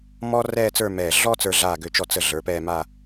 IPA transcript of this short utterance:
mɔ˧ rɛː˥˧t͡sə˞˥˧mɛː˧˩ ɮɔ˥ t͡sə˞˧ɮaː˧˩ɡø˧˩t͡ʃɔ˧˩ t͡sə˧˩ ɮə˞˩˧pɛː˥˧ma˥˧

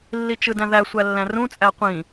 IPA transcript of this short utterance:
lːit͡ʃɯdæ̃ðæ sʷælːæ̃rũ t͡sʼæqʷĩ

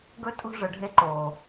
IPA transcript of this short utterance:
ɡɵ˦tʼo̤˦ ʐə˨ɖʱe˦ ǃo˨

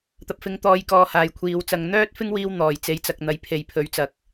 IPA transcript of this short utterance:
t̪ɐ˨p̚fɪ˧ŋt̪ɔː˧j kɔː˧haː˨jkʷʰiː˨˧w t͡sɐ˨˧ŋ n̪œː˥t̚fɪ˥ŋwiː˧w n̪ɔː˨˩j t͡se˨˥jt͡sɐ˨k̚n̪ɐ˨j pʰe˨jpʰɵ˨˥ɥt͡sɐ˨˥k̚

